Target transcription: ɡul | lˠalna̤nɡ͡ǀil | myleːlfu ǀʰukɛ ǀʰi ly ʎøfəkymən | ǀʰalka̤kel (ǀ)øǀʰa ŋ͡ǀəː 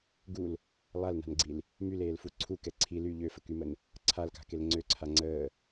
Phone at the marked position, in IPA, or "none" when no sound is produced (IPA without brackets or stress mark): ŋ͡ǀ